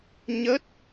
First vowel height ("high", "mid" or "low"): mid